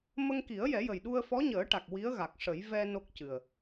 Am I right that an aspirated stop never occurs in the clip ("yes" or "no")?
yes